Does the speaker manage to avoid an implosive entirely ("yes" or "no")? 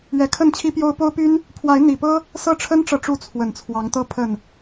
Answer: yes